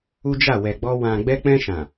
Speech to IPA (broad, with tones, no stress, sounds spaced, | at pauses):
u˦ d͡ʒ a˦˨ w ɛ˨ ɡ͡b ɔ˧ w ã˨ ɡ͡b ɛ˧ k͡p ɛ̃˧ ʃ ã˨